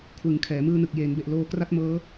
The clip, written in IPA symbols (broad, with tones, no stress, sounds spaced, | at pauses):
kʰ w ɯ˩˦ ŋ kʰ ɛː˩˦ m ɯː˧ n ɯ˨˩ k̚ j eː˩˦ n b e˨˩ ʔ l oː˧ k r a˥˩ t̚ m ɤː˦˥